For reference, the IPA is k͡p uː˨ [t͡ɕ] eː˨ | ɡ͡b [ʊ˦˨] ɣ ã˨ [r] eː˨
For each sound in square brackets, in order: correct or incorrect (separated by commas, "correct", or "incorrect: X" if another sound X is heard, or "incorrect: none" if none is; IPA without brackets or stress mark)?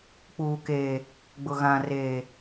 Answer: incorrect: k, incorrect: ʊ˨, correct